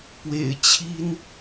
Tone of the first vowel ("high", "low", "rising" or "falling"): low